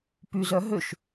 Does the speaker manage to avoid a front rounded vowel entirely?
no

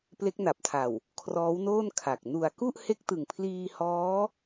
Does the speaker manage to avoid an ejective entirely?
yes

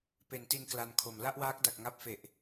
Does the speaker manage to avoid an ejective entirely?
yes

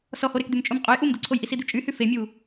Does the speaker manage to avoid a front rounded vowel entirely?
no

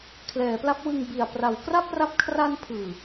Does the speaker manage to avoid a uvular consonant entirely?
yes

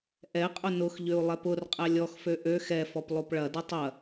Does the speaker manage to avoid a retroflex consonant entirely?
no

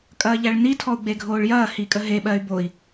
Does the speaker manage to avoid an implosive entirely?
no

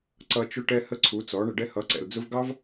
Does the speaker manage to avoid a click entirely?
no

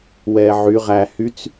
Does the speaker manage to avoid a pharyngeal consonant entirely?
no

